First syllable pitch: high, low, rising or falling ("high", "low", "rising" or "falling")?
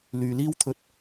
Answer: low